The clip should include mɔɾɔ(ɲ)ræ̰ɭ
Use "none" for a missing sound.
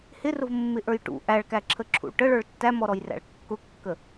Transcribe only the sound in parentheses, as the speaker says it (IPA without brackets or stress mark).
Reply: j